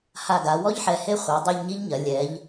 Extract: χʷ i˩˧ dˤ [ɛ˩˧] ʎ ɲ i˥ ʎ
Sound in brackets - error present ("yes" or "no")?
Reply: yes